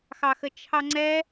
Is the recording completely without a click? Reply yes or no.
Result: no